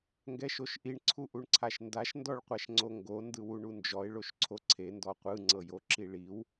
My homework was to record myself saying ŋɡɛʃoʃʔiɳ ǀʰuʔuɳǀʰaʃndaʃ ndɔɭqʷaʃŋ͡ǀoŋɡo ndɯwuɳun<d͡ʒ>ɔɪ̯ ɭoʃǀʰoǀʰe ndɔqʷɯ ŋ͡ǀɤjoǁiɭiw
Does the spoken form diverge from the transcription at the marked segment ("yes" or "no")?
no